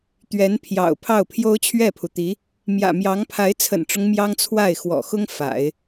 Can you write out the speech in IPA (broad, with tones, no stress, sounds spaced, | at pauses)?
t̪ ɥ ɛ˧˥ n pʰ j ɑ̰˨˩ ʊ̯ pʰ ɑ˥˩ ʊ̯ pʰ j o˥ ʊ̯ t͡ɕʰ ɥ ɛ˥˩ pʰ u˩ t̪ i˧˥ | m j ä̰˨˩ m j ɑ˧˥ ŋ pʰ a˧˥ ɪ̯ t͡sʰ ə̰˨˩ n ʈ͡ʂ ʊ˦ ŋ m j ɑ˥ ŋ t͡sʰ w a˥˩ ɪ̯ x w ɔ̰˨˩ x ʊ˥ ŋ f a̰˨˩˦ ɪ̯